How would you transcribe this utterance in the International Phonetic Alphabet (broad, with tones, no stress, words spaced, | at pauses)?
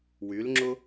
wy˨˦lŋ͡ǁʊ˦